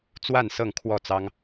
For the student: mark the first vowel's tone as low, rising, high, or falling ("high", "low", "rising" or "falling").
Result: falling